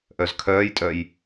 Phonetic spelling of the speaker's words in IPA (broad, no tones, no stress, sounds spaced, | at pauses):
ʔ œ z kʰ œː j tʼ œ j